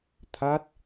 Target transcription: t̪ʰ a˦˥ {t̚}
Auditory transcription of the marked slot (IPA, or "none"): t̚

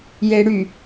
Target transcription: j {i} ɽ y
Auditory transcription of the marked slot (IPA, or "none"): e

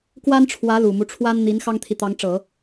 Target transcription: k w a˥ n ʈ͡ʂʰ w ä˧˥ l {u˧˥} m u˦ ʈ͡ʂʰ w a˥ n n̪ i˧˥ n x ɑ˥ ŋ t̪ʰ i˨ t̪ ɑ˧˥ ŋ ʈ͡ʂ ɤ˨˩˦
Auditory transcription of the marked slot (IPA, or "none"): u˨˩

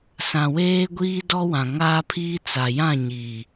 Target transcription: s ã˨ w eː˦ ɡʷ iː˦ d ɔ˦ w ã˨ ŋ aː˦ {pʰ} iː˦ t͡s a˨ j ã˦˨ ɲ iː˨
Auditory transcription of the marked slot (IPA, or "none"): pʰ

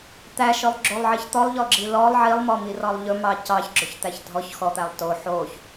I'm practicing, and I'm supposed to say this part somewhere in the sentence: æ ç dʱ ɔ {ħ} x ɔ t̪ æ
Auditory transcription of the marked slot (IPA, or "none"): ç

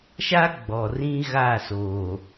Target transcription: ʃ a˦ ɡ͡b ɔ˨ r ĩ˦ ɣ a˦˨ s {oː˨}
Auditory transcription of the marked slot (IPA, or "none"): oː˨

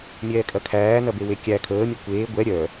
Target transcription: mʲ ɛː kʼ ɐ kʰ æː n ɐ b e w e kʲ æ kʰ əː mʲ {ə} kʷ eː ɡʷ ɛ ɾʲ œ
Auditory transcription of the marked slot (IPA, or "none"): ə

